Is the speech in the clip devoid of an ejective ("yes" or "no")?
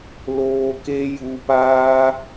yes